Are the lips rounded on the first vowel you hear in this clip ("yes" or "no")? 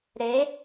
no